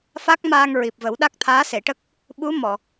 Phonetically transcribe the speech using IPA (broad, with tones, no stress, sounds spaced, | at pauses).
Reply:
f a˦˥ k̚ m aː˧ ŋ ɹ i˨˩ p̚ v ə˨˩˦ w ɗ a˦˥ k̚ t̪ʰ aː˧˥ s e˨˩˨ ʈ ə˦˥ k̚ | ɓ u˧˥ m ɔ˨˩˨